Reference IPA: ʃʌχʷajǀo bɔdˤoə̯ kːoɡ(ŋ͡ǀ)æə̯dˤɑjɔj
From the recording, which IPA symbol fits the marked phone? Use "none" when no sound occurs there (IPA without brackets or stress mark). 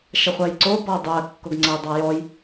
ŋ͡ǀ